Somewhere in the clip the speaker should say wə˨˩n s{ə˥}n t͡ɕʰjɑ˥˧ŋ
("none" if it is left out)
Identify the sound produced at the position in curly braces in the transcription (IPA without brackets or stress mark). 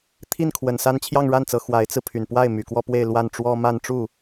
a˥